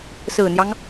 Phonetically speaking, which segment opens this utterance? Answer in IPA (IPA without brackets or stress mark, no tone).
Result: s